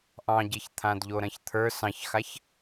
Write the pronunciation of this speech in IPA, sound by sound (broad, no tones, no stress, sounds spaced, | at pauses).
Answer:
ʔ ɑ̃ ɟ e ç t̪ʰ ã d ʎ o ɾ ɐ̃ ç t̪ʰ ə˞ s ɑ̃ ç x a ç